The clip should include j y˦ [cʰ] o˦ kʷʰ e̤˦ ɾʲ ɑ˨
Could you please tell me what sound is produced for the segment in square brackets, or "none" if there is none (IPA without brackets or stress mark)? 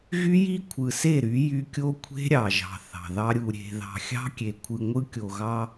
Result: kʲ